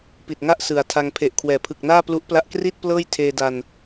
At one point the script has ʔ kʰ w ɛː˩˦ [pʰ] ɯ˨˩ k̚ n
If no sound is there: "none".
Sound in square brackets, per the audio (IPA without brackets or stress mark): pʰ